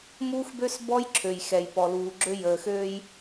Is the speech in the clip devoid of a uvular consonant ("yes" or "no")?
yes